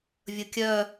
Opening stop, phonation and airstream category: plain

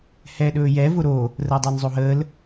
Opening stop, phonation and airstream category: implosive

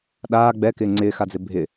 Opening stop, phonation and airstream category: implosive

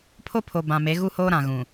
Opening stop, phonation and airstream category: aspirated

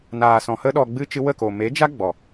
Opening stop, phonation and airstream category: implosive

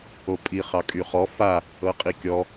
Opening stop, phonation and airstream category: ejective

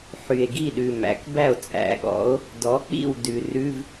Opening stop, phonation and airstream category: plain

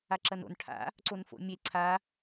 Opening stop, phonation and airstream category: click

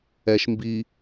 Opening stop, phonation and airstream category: plain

